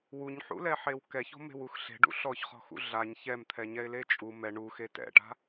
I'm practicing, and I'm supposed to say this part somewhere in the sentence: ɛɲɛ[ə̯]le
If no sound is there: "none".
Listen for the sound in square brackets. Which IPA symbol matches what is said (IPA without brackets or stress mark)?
ɪ̯